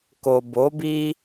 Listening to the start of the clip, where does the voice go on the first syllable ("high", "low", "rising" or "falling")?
low